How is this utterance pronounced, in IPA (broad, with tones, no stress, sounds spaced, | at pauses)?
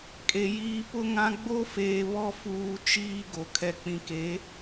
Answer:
kʼ e˨ j iː˦ p ʊ˦ ŋ ã˦ ɡ͡b o˦ f eː˨ β ɔ˦ f uː˨ t͡ʃ iː˦ ɡ o˨ kʰ ɛ˦ k͡p ĩ˨ k e˨˦